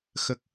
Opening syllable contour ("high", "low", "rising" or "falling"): low